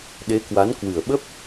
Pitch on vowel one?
rising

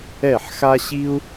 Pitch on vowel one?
falling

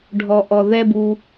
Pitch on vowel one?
low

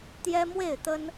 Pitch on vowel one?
high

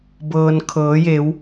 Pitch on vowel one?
low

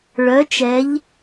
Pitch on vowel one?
rising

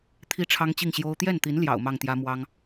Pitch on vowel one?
high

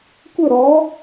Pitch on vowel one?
falling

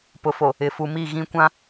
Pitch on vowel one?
low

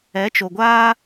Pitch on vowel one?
rising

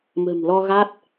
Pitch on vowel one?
low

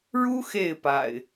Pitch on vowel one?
high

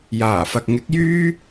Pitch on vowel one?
low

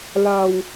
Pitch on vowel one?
low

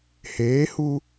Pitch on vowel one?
rising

